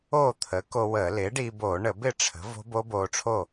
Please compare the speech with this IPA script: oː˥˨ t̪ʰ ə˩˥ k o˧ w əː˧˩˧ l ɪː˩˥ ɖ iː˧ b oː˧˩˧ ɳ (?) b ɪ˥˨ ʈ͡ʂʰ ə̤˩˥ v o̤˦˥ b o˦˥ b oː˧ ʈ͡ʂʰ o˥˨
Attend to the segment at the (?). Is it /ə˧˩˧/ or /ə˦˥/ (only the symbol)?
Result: ə˧˩˧